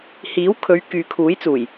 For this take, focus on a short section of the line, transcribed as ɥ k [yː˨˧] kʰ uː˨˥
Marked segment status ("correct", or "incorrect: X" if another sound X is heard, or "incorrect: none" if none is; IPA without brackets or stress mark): correct